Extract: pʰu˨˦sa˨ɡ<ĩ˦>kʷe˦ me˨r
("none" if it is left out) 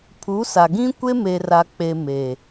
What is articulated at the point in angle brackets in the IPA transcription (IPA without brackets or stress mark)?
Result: ĩ˦